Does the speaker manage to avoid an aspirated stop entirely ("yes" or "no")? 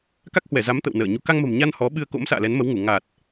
yes